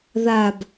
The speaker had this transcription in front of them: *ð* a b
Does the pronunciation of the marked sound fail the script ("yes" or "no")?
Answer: no